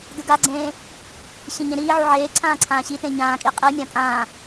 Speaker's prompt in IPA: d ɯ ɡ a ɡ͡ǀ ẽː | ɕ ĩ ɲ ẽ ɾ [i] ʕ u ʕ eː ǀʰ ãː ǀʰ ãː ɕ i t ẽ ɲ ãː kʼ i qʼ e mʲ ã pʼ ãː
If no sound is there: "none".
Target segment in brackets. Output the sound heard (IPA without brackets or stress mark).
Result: iː